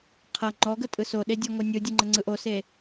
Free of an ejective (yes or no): no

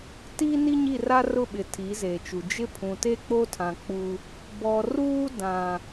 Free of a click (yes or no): yes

